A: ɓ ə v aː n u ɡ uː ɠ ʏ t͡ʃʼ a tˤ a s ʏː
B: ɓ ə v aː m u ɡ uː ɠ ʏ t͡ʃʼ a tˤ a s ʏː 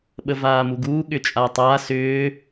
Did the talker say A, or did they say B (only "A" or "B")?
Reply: B